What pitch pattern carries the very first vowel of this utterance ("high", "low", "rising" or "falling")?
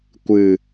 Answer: low